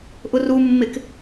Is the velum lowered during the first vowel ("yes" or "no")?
no